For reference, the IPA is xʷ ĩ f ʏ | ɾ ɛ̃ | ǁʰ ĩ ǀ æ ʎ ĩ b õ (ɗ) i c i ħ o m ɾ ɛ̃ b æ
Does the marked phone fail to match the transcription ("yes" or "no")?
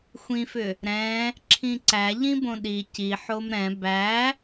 no